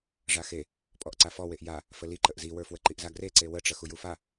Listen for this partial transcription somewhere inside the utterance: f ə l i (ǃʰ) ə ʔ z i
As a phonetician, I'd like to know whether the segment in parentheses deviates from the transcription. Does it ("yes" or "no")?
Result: yes